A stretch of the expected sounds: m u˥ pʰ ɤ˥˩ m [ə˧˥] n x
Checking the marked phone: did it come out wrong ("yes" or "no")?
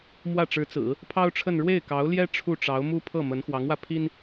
no